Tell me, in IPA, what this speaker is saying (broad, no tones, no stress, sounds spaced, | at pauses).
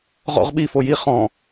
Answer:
ʁ ɔ̰ ʁ ɓ i f o j i χ ɔ̃